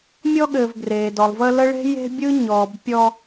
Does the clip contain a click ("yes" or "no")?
no